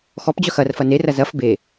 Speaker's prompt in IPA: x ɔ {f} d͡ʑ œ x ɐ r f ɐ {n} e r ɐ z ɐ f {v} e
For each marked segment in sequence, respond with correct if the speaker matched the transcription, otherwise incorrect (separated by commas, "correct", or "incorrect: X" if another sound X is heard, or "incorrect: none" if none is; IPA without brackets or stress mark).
incorrect: p, correct, incorrect: b